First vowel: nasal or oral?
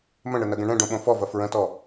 nasal